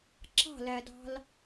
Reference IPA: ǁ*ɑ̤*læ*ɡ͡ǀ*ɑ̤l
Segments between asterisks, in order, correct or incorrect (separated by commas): correct, incorrect